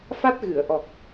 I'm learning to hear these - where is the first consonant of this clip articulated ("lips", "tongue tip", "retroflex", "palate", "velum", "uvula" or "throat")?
lips